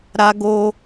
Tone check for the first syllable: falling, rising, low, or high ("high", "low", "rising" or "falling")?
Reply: high